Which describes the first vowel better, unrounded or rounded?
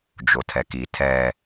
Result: rounded